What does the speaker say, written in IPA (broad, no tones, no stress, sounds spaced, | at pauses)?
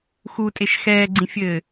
x u tʼ e ʃ x ɛː ɡ͡ǀ ĩ fʲ ɘː